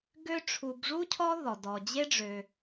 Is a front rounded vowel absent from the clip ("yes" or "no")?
no